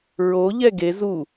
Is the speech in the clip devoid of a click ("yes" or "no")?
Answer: yes